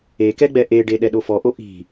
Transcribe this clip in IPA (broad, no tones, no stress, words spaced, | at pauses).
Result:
ekɛ ɡ͡bɛʔeɖe ɗɛɗofɔʔo ʔi̤